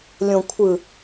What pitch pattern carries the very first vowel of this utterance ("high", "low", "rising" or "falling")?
low